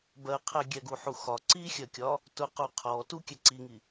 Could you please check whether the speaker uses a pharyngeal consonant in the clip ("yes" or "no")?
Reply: yes